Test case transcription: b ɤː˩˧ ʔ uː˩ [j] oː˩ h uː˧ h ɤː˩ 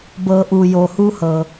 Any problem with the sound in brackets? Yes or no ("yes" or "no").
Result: no